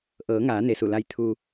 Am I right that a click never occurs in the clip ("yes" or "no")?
yes